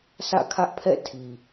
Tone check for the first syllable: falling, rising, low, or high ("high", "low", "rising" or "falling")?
falling